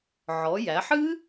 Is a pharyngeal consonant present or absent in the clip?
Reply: present